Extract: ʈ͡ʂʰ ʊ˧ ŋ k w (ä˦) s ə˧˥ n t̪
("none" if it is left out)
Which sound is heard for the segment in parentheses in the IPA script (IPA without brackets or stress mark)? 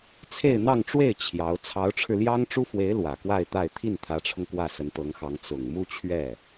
ä˥˩